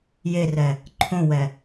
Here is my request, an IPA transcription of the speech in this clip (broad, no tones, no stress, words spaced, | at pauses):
jerɛ | ǃʰõwɛ